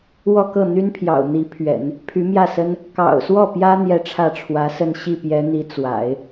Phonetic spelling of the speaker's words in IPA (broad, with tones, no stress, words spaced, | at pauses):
wɔ˥˧kɤ˥˩n̪y˥npʰjɑ̰˨˩ʊ̯ n̪i˧˥pʰɥɛ̰˨˩˦n | pʰy˧˥mjä˥˩sə˥n | kɑ̰˨˩ʊ̯swɔ˥˩pjä˥ n̪jɛ˥ʈ͡ʂʰä˥˩ʈ͡ʂʰwä˧˥sə˥˧n ɕi˥˩pjɛ˧˥n̪i˧˥ t͡swa̰˨˩˦ɪ̯